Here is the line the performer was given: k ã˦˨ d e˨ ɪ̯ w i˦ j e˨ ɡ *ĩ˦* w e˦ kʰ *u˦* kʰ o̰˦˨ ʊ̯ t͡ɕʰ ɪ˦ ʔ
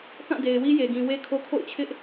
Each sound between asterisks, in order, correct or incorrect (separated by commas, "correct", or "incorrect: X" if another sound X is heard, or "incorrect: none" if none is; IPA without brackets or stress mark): incorrect: ĩ˨, incorrect: o˦